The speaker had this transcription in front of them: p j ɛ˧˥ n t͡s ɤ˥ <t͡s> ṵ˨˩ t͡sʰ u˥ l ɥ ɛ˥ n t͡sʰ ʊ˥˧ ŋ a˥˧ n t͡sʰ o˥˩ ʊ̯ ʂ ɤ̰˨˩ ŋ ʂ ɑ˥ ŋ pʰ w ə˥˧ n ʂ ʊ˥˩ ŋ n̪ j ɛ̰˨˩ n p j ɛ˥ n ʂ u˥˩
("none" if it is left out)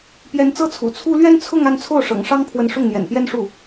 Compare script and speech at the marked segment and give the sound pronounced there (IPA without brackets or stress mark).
t͡sʰ